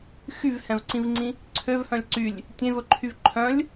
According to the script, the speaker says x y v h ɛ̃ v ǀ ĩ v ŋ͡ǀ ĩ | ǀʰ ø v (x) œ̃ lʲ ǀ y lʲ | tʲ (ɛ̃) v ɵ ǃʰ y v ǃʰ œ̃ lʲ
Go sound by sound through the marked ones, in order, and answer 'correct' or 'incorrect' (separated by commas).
incorrect, incorrect